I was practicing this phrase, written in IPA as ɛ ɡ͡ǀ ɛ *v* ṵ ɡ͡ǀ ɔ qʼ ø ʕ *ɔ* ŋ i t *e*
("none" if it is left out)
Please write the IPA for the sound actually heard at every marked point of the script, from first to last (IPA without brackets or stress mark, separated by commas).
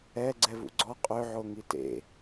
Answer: v, o, ḛ